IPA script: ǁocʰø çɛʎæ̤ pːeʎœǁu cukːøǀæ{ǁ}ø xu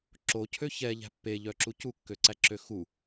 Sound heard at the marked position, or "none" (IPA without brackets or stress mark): ǁ